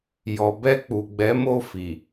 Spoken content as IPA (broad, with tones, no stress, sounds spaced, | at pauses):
j ɔ˨ b ɛ˧ k͡p u˨ ɡ͡b ɛ˨˦ m o˦˨ f i˨